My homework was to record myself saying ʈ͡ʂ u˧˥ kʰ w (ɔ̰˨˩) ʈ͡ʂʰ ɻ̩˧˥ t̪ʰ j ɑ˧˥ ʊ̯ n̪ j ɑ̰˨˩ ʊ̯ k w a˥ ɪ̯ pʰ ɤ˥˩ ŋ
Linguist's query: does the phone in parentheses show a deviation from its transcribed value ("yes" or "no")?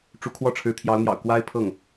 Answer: yes